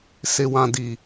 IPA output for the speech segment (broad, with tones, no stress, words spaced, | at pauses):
sɪ˨wã˨di˨